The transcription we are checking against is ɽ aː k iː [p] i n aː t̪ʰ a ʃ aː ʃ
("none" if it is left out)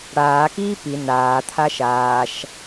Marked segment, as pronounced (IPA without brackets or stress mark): p